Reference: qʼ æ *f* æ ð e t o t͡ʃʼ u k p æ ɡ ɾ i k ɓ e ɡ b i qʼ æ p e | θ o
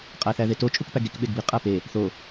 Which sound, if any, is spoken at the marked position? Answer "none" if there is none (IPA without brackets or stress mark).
θ